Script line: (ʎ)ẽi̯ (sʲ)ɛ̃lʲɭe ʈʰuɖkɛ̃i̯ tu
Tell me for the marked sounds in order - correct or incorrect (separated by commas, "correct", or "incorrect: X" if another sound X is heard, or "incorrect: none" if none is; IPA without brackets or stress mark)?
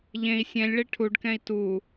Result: correct, correct